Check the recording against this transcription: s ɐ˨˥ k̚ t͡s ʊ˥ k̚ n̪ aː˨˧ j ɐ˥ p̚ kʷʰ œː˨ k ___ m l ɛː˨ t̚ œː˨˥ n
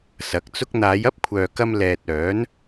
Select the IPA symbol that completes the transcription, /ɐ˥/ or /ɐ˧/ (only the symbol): ɐ˧